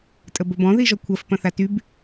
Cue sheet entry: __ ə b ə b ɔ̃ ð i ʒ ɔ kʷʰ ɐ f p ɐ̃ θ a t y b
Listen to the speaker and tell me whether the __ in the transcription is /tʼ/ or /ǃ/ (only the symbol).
tʼ